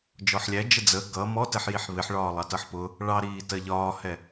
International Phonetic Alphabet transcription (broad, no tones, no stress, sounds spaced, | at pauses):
d͡ʒ ɔ ħ lʲ æ d͡ʒ ə d͡z ə ɡ ʌ m ɔ t ɛ ħ j i ħ β ɪ ħ ɭ ɒː lˠ ɑ t ʌ ħ p ʊ | ɭ ɑ ɾ iː t ɜ ʎ ɒː h ɛ